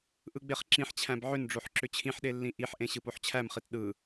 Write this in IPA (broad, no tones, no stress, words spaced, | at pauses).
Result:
ʔɯɡ͡beχǁĩħt͡ɕʰæ̃b ʕʏnɖ͡ʐoħ ǁʏt͡ɕʰĩħɗe lːĩʔiħʔẽ ɕɯpoħt͡ɕʰæmχit ɗɯ